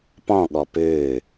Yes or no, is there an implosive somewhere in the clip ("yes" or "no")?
yes